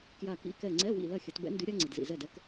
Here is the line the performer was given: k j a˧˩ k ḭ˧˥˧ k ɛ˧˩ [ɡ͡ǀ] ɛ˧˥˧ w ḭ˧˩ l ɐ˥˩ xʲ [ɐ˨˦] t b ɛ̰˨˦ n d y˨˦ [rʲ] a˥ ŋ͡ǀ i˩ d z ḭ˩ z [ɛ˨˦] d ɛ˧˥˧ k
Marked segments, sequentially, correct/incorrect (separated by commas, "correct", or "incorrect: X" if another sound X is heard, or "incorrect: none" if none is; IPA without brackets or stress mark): incorrect: ŋ͡ǀ, correct, incorrect: ɾʲ, incorrect: ɛ˥˩